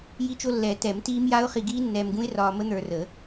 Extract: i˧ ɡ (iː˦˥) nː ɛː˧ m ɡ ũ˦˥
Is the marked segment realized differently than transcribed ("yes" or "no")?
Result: no